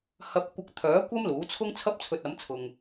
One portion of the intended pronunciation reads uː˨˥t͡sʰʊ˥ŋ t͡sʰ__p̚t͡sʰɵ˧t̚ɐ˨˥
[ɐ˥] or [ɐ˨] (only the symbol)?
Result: ɐ˥